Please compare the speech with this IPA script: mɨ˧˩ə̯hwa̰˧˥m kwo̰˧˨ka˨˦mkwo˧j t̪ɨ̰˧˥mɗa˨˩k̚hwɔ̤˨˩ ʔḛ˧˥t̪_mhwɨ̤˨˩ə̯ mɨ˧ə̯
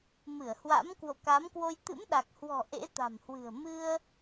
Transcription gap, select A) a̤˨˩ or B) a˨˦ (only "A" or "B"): A